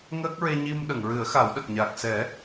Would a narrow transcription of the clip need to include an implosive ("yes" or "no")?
yes